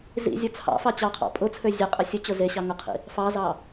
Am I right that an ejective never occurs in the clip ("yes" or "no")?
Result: no